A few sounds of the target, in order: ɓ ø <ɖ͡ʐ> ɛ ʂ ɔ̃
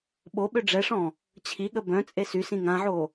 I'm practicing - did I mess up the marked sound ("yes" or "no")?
no